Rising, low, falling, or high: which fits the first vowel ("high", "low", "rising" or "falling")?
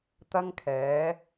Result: high